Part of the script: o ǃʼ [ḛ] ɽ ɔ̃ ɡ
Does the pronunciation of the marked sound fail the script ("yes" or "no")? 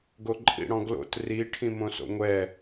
yes